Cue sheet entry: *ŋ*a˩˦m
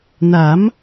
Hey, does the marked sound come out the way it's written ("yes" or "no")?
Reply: no